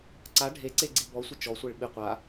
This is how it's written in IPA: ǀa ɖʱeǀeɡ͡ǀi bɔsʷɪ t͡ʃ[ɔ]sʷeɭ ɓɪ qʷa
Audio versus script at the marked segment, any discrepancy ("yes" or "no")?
no